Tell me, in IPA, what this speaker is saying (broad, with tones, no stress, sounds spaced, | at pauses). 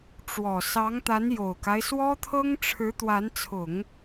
ʈ͡ʂ w ɔ˨˩ s ɑ˧˥ ŋ t̪ a˧˥ n j o˨˩ ʊ̯ k a˦ ɪ̯ s w ɔ˥ t̪ʰ ɤ˥ ŋ ʈ͡ʂʰ ɻ̩˧˥ t̪ w a˧˥ n t͡sʰ ʊ˨˩˦ ŋ